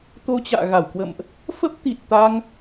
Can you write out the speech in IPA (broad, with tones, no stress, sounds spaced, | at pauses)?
t̪ o˧ t͡ɕ a̰ː˧˨ ɣ a˧˩ w k w ə̰˧˨ m ʔ | f ə˦˥ p̚ t̪ i˨˩ t̚ t̪ a˧ ŋ